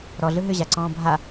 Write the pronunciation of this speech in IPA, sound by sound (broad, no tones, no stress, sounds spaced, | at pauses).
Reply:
ɾ ɔ ɮ ɯ ɦ ʏ ʑ a ǀ ɔ̃ː bʱ a